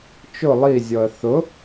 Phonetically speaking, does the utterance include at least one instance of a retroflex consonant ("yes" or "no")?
no